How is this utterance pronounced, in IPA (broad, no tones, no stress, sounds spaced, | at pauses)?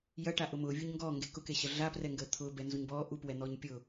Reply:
j ɐ ʈ a ʔ ʊ m ʊː vʲ u ɲ ŋ ɡ ɔː ŋ ɡ e k ʊ k e ɕ ɐ ɮ a p r ɛ ŋ ɡ əː t̪ʰ ʊː b ɛ n z u ɲ b ɔː ʔ u p w ɛ n̪ ɔː ɲ pʲ ʊ